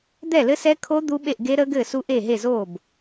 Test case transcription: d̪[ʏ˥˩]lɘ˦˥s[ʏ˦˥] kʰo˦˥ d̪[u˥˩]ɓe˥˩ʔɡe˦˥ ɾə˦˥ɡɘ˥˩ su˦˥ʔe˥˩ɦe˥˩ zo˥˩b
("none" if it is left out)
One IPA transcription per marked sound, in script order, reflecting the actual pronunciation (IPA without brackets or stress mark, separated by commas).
ɛ˥˩, ɛ˦˥, u˦˥